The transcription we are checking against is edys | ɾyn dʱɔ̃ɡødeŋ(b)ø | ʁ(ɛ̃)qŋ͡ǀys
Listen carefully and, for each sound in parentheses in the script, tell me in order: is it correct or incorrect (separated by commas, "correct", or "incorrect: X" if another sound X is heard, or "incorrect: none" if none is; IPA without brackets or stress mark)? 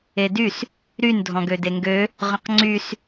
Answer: incorrect: ɡ, incorrect: ə̃